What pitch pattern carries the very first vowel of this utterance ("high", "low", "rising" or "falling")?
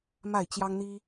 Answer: falling